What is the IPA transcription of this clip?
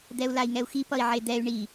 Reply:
d̪ ɛ u̯ l a i̯ ŋ ɛ u̯ x i p ʌ i̯ ʕ e d̪ ɛ y̯ ɳ i

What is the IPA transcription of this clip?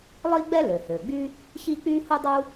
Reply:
lˠ iː˥ ɡ͡b ɛ˥ l ø˩ h øː˩ ɡ͡b y˥ | ç iː˥ k͡p yː˥ h u˥ dˤ u˥

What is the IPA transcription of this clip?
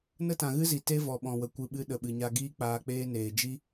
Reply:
n ə˦ t ã˨ ɣ ɨ˦ z i˨ t e˦ v ɔ˨ ɓ ɔ̃˨ w ə˨ kʷ ɨ˧ ɓ ɨ˦ ɗ ə˨ ɓ ɨ˨ ɲ a˧ ɡ iː˦ k͡p aː˧ k͡p eː˦ n eː˨ d͡ʒ i˦

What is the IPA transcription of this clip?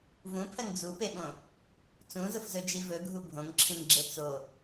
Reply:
v ũ pʰ ɜ ŋ d͡z u p e ɓ õ | t͡s ũ z ʊ f z ɵ d͡ʒ i v ɵ ɡʱ u bʱ õ ŋ ǁʰ ĩ ŋ ɡ͡ǁ e t͡s o

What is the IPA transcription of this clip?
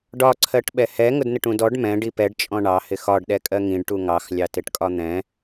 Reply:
ɖ ɒ ǀʰ ɜ ʈ ɓ ɛ h ɛ ŋ ʊ d n ɪ ʈ ũ d ɔ ɖ m ɛ̃ ɖ i p ɛ ɖ t͡ʃʼ ɔ̃ ɳ ɑ h ɪ x ɒ ɖ ɗ ɛ kʼ ɜ ŋ ĩ ɖ ʈ u ŋ ɑ x lʲ ɑ t ɪ ʈ kʼ ɒ n̪ ɛ̃

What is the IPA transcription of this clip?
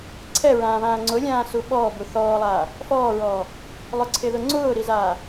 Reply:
ǀʰ ɛ ɹ ãː β ãː ŋ͡ǀ ʊ lʲ ãː s u ɓ ɔː b u θ ɔː lˠ aː | f ɔː ɹ ɔː | lˠ ʊ ǀʰ ɪ ð ʊ ŋ͡ǀ ʊː ɾ i z aː

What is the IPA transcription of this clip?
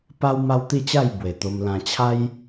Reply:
p a˦ w m a˦ w t̪ i˥˧ t͡ɕ a˥˧ j b w e˨˩ t̪ o˧ m l ã˧ t͡ɕʰ a˦ j

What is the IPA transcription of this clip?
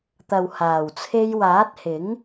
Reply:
t̪ ɐ˨ w h aː˨˩ w t͡sʰ e˧ j w aː˨˥ t̚ h ɪ˨˥ ŋ

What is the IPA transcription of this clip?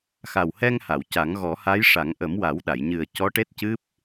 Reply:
x a˨˩ w h ɛ˧ ŋ h a˨˩˨ w c a˨˩˦ ŋ ɣ ɔ˨˩˦ h a˧˥ j ʂ a˨˩˦ ŋ ʔ ə˨˩˦ m w a˨˩˦ w ɗ a˨˩˨ j ɲ ɨ˨˩ ə̯ c ɔ˧˥ ʈ e˦˥ t̚ c ɨ˦˥ p̚

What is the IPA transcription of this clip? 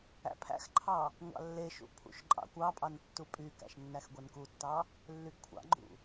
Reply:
æ̰ pʰ æ̰ x ǃʰ ɑ | ŋʷ ɑ̰ lː e ʃ ṵ pʰ ṵ ʃ ǃʼ ɑ̰ kʷ ɑ pʼ ɑ n tː u pʼ y k æ̰ ʃ nː æ x ɡʷ ɛ n k u tː ɑ | lː y ɡ kʷʰ ɑ̰ ɡ͡ǃ ṵ

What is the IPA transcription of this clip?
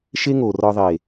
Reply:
ʃ e˦ ŋ o˨ r ɒ˧ ðˤ e˨

